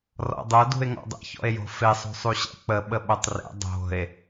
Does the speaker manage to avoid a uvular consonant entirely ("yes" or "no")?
yes